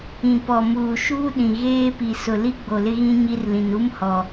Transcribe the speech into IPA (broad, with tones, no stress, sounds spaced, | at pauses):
ĩ˨ p ɔ˨ m uː˨ ʃ uː˦ ɗ ĩ˨ ɣ eː˦ p i˨ s ʊ˨ l i˦ ɡ͡b o˨ l ɪ˦ ɣ ĩ˦ ɲ i˦ r l ĩ˨ n u˦ m h ɔ˨